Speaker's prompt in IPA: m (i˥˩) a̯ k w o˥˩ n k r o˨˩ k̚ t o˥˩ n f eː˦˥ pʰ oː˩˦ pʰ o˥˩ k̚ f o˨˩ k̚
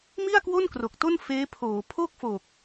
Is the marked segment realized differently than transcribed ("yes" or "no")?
no